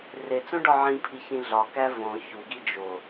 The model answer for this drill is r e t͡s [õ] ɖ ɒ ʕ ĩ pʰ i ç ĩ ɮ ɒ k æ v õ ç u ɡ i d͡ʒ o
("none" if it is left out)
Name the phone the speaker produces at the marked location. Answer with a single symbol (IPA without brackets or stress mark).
õ